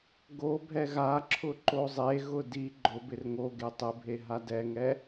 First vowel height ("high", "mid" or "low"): mid